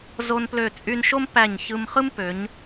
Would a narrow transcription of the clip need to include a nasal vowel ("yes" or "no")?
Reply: no